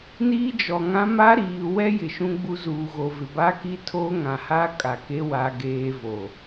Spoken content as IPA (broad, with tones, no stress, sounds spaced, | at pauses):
n iː˦ d͡ʒ ɔ˨ ŋ ã˦ m a˦ ɾ iː˨ w ɛ˦ j ɪ˨ ʃ ũ˦ ɡ͡b u˦ z uː˨ ɣ o˨ v ɪ˨ b a˦ k i˦ tʰ oː˦ ŋ ã˨ h a˦ kʼ a˨ k e˦ w a˦ ɡ eː˦ v o˨